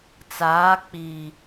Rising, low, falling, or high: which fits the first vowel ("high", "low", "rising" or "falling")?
rising